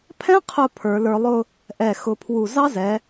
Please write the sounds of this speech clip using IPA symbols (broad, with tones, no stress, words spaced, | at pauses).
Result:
pʰɛ̃˥qʰʊ˧˩ pʰə˞˩˧lə˞˧lˠʊ˥˧ | ʔɛ˧˩ xʊ˧pʰwu˧˩ zɑ˥zɛ˩˧